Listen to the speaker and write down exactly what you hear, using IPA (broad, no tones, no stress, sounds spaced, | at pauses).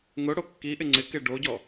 ŋ ʊ ɽ o kː i ʔ ɪ ŋ͡ǀ ɪ k ɪ ɖ o ɟ ɔ